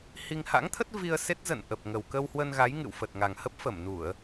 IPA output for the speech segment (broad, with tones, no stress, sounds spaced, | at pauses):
h i˧ ŋ h a̰˧˥ ŋ t̪ʰ ə˦˥ t̚ v i˧ ə̯ s e˦˥ t̚ z ə̰˧˨ n ʔ ə˨˩ p̚ ŋ ə˨˩ w k ə˧ w h w ə˧ n ɣ a˨˦ j ŋ ɨ̰˧˨ w f ə˨˩ t̚ ŋ a˨˩ ŋ h ə˦˥ p̚ f ə˧˩ m n u˧˩˨ ə̯